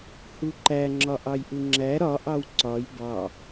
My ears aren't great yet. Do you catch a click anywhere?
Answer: yes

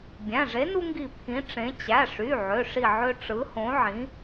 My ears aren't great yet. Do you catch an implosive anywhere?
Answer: no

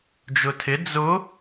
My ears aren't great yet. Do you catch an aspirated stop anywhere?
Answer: yes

